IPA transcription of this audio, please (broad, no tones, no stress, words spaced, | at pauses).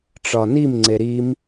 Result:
ʈ͡ʂɒnim ŋ͡ǀeɾim